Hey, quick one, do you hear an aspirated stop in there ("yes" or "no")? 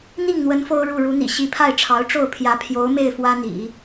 yes